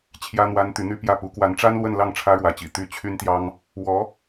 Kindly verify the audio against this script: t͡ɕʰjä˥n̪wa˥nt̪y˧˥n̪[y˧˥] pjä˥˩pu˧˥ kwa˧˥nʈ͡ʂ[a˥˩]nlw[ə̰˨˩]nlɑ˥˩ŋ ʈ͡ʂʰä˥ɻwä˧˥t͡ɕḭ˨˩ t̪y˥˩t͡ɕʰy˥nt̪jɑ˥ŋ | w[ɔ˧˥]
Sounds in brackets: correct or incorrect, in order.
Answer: incorrect, incorrect, incorrect, correct

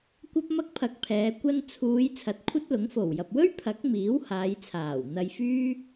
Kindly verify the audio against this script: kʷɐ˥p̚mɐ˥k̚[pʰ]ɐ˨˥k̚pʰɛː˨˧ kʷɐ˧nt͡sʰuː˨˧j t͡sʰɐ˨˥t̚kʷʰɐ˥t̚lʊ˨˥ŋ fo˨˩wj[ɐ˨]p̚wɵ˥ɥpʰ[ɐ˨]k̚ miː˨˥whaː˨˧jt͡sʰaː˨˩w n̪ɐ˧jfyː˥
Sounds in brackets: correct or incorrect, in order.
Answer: correct, correct, incorrect

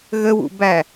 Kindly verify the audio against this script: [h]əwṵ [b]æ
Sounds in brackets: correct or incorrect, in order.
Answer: incorrect, correct

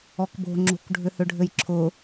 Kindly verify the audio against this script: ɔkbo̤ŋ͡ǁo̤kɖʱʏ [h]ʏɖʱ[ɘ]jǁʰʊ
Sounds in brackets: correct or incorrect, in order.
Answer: correct, correct

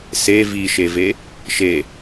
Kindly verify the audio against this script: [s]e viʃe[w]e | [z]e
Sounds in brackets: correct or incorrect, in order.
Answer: correct, incorrect, incorrect

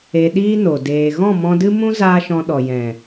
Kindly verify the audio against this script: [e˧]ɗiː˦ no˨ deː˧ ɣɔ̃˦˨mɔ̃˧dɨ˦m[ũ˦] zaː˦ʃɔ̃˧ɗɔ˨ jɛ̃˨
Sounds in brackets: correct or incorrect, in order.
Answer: correct, correct

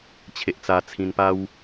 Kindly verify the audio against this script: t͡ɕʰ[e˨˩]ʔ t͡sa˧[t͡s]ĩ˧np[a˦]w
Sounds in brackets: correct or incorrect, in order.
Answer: incorrect, incorrect, correct

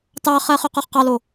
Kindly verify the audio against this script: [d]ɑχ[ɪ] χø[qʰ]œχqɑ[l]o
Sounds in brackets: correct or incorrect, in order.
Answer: incorrect, incorrect, incorrect, correct

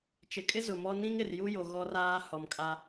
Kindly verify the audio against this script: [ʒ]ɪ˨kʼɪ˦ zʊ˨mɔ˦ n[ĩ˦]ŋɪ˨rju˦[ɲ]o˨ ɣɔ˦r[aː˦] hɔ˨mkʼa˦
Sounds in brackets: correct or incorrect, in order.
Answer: incorrect, correct, incorrect, correct

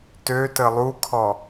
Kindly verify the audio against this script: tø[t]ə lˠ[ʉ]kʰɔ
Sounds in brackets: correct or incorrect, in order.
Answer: correct, incorrect

